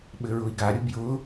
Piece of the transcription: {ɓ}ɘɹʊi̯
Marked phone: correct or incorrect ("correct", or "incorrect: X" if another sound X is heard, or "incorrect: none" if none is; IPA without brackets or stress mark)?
correct